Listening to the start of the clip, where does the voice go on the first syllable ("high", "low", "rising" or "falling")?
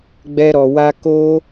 high